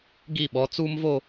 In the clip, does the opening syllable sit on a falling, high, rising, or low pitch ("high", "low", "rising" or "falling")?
falling